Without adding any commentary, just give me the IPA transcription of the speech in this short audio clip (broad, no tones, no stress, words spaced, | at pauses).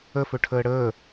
əfɵʈʰəː ɽəː